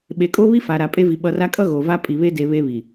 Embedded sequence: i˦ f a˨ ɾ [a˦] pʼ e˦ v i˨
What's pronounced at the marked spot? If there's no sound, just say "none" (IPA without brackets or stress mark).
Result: a˨